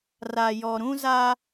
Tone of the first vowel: low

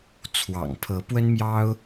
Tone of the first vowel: low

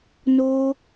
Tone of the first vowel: high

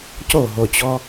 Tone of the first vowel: falling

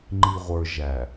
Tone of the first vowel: low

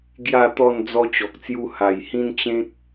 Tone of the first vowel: falling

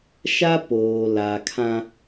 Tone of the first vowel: high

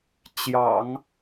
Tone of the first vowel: low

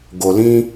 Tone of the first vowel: low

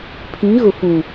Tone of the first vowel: rising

